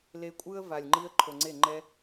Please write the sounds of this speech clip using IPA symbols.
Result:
l e˧ kʷʼ ɯ˦ ə̯ v a˨ lʲ ŋ͡ǃ i˦ ə̯ ǃʰ o˨ ŋ͡ǀ e˦˨ ŋ͡ǃ ɛ˦

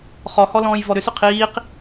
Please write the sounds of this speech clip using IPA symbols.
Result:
χ ɔ h ɔ l ɔ̃ː j v ɔ ɾ ʏ s ʏ qʰ iː q

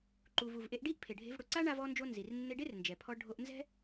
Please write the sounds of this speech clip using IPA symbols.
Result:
ǃ u˩ v u˩ v ʔ e˧ ʔ ɖ i˥ ʔ pʰ e˩ ɖʱ e̤˧ v ɽ ʊ˩ ǀ a˥ ɳ a˧ v ɔ˧ n d͡ʒ o˧ n z i˩ r nː e˧ ɖ e˥ r n d͡ʒ ɛ˩ pʰ ɔ˧ ɖʱ o˧ ʔ n z ɛ̤˥

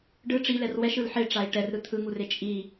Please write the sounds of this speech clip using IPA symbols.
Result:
ɖ ɯ ʈ͡ʂ i l ɛ r w ɛ ʃ ɯ l ħ e ʈ͡ʂ a i̯ ʈ ɛ r ɾ ɯ t̪ʰ ɯ ŋ u r e t͡ʃʼ i

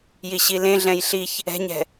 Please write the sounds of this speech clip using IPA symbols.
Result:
j i ɕ i l ẽ ɮ ɛ̃ j ɬ i ç | ɛ̤ ɲ ɛ̤

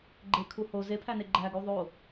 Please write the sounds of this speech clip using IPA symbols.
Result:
ɡ͡ǃ e kʰ u h o z e pʰ æ n e ɡ͡ǃ æ ɡ u ðˤ o

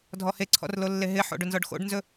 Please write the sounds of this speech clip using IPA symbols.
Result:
dʱ ɔ h e ǀʰ ɔ̰ r l o lː e ɦ ɪ ħ o̰ ɖ ɵ n z ɔ ɖ x o̰ ɖ n z ɵ

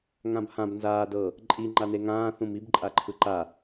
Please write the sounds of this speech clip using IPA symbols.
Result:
ŋ ã b h ã b n z aː d ɤ | ǃʼ i ŋ͡ǃ a n e ŋ ãː θ ũ m i b ǃʼ a ǃʰ ɯ ǃ a

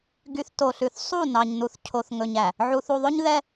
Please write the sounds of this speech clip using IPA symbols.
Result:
ɡ y˨ θ t o˨ ɬ ʉ˨ θ sˤ u˦˨ n ɑ˨ ɲ n u˨ θ cʰ o˨ θ ŋ ɵ˨ ɲ æ˨ | ʕ u˨ θ u˨ ðˤ ɵ˦ ɲ ð ɛ˦

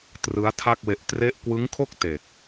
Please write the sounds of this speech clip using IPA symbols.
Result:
t r ɯ˦˥ a̯ tʰ a˥˩ k̚ w e˦˥ ʔ t r e˦˥ ʔ k w ɯ˦˥ ŋ kʰ o˥˩ k̚ t e˨˩ k̚

